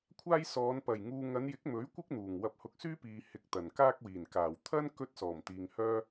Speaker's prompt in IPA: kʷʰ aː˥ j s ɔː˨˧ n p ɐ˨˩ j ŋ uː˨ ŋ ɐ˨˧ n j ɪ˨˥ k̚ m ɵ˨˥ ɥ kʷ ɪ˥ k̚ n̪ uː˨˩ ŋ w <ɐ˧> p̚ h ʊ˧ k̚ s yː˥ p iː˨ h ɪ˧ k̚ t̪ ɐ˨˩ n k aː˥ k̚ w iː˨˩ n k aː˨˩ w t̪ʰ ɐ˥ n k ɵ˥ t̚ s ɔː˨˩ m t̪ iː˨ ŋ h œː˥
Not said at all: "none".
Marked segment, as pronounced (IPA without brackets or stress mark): ɐ˧